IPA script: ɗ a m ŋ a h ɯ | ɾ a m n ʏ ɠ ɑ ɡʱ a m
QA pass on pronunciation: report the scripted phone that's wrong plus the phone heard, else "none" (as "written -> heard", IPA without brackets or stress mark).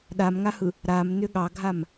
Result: none